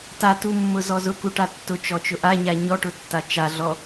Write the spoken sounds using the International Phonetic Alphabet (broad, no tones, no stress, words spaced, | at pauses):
tatumːʊzɔ zʊkuʈa tːʊt͡ʃɔt͡ʃʊ ʔaɲa ɲɔʈʊtːa t͡ʃaɮɔ